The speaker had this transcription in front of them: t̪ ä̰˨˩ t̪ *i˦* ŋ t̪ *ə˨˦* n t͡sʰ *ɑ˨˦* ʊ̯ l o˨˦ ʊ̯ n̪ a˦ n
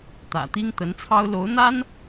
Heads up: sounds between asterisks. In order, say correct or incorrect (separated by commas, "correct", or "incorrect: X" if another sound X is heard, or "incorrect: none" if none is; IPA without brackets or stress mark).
correct, correct, incorrect: ɑ˦